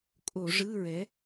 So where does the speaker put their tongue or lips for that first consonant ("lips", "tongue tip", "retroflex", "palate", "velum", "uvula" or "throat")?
velum